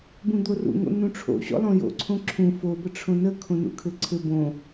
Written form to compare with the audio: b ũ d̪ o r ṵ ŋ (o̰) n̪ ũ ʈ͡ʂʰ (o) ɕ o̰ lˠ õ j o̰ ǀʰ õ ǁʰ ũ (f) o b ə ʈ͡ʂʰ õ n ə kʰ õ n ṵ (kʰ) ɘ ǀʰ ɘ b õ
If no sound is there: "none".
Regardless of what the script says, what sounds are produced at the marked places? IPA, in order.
o̰, o̰, f, kʰ

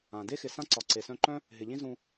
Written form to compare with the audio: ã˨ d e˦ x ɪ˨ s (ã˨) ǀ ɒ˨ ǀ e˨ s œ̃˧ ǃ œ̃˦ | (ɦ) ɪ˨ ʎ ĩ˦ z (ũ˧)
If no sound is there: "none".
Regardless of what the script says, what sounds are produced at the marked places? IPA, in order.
ã˦, ɦ, ũ˧

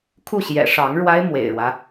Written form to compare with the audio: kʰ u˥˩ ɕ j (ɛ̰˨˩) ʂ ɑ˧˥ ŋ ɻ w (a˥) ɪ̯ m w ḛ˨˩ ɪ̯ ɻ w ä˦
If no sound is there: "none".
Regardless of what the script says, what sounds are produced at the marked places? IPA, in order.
ɛ̰˨˩, a˥

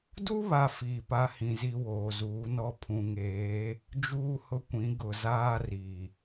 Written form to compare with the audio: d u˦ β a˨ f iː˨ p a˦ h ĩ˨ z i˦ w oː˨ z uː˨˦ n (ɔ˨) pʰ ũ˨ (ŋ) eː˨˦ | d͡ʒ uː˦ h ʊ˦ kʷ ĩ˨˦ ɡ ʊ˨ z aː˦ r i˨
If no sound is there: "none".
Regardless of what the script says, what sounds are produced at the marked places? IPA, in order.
ɔ˦, ŋ

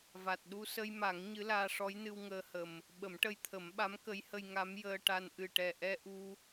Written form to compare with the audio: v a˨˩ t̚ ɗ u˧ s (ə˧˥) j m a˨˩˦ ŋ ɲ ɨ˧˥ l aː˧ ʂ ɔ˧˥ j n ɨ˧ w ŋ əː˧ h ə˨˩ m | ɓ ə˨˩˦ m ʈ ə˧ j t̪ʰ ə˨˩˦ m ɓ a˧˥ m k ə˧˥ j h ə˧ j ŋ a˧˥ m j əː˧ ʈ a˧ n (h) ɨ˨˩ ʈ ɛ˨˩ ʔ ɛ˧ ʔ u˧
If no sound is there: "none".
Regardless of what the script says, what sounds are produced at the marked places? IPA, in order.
ə˧, ʔ

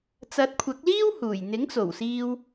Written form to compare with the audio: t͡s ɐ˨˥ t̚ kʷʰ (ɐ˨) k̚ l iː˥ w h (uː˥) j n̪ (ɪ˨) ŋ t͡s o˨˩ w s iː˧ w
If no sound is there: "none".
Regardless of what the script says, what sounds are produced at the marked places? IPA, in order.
ɐ˨˥, uː˨˩, ɪ˨˥

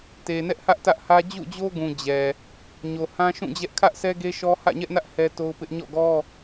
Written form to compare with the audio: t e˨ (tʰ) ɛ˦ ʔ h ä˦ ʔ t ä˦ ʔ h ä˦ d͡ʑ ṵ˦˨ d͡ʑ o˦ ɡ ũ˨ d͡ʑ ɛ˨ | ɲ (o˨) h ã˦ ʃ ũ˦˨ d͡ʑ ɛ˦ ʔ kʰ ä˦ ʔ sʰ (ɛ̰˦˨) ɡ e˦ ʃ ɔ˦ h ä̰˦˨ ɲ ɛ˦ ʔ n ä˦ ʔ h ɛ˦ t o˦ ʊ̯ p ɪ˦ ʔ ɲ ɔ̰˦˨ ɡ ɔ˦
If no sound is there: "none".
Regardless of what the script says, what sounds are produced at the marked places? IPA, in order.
n, o˨, ɛ˦

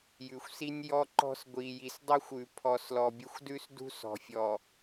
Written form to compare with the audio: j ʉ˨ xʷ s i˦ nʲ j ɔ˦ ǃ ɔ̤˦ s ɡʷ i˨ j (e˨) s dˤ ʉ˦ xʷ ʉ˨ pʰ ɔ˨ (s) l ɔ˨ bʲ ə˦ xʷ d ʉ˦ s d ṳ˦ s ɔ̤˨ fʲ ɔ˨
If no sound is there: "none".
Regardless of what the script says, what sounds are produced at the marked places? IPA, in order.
i˨, s

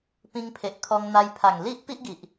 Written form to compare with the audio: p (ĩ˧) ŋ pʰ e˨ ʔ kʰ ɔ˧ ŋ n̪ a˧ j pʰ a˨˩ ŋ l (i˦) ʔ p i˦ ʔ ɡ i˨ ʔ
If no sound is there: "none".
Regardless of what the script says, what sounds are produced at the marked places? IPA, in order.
ĩ˧, i˦

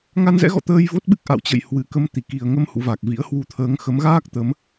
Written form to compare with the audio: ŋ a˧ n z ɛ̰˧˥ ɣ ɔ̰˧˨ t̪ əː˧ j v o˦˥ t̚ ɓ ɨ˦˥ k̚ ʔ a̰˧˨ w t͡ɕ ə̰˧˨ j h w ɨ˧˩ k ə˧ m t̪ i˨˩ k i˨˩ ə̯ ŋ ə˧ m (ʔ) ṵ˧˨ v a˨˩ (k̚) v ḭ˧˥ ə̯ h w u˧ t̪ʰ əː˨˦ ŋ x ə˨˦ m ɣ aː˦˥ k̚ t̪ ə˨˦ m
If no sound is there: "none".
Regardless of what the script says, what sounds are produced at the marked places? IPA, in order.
h, k̚

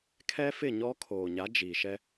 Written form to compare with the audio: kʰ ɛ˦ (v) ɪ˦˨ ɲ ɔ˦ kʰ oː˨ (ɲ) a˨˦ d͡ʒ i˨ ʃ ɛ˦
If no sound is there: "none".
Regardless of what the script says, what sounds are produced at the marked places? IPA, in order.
f, ɲ

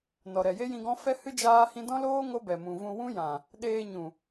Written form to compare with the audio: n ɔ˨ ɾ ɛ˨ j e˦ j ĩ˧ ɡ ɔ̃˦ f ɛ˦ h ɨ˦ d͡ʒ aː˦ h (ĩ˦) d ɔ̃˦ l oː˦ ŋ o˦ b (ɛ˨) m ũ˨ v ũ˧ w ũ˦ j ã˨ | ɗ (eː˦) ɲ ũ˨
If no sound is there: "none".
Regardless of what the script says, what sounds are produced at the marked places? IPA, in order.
ĩ˦, ɛ˨, eː˧

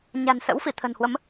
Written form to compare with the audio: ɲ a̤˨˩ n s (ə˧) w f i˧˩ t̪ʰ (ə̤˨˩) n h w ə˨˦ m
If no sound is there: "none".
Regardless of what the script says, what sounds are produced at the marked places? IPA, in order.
ə̰˧˥, ə̤˨˩

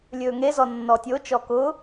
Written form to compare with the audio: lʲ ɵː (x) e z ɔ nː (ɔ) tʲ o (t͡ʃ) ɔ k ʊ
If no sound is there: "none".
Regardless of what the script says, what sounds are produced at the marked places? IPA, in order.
ŋ, ɔ, t͡ʃ

